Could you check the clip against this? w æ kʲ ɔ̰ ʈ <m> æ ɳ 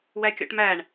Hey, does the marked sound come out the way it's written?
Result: yes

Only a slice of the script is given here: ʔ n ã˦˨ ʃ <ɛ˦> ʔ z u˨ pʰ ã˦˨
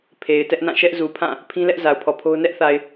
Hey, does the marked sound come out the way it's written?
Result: yes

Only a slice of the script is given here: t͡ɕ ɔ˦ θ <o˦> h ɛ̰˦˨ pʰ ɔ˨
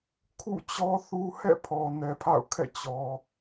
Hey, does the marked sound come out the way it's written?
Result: no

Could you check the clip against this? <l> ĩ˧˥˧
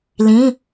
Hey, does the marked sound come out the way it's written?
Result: yes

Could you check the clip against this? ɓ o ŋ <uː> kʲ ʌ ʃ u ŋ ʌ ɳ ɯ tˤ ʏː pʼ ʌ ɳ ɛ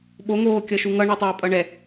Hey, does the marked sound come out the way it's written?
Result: no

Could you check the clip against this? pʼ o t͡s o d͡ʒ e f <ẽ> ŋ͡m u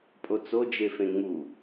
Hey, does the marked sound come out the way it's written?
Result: yes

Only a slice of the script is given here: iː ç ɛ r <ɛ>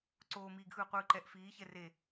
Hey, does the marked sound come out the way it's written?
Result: no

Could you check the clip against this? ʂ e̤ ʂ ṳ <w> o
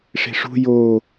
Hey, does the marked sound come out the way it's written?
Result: no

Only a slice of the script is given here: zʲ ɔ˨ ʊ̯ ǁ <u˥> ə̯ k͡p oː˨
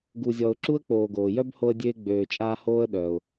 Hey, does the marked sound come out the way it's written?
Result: yes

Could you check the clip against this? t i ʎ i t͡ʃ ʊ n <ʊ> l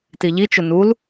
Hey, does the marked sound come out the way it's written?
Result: no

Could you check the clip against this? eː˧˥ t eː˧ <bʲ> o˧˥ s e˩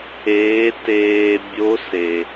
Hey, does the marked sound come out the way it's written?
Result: yes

